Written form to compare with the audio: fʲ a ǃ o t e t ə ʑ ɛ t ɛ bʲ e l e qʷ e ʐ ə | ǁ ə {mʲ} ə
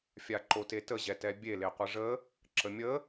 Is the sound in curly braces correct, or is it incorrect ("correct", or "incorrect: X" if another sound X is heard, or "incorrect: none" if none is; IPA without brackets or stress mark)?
correct